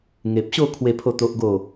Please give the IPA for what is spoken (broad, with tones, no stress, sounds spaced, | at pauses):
ŋ e˨ p̚ ɕ o˥˧ kʰ w e˥˧ pʰ o˥˧ t̪ o˦ ʔ ɡ o˥˧